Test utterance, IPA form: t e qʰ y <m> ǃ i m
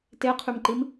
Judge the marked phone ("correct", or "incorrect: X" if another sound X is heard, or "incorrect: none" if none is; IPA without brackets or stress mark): correct